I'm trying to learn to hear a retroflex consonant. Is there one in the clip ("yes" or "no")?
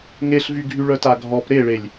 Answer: yes